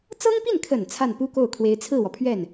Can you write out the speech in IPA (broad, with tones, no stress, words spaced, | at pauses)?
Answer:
t͡sɤ˥ŋpi˥˩nkʰə˨˩n t͡sʰa˥˩npu˥ko˥˩ʊ̯ kʰwe˧˥ɪ̯t͡sʰɹ̩˥˩wɔ˩pʰɥɛ˥˩n